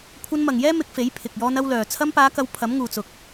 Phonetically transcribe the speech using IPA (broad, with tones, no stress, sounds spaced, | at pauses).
kʷʰ ɐ˧ n m ɐ˨ ŋ j ɛː˥ m ɪ˧ k̚ f e˨˥ j pʰ ɪ˨ k̚ j ɔː˧ n ɐ˧ w l œː˨ t͡sʰ ɐ˧ m p aː˨˧ k ɐ˨˧ w pʰ ɐ˨˥ m ŋ uː˨ t͡s ʊ˨ k̚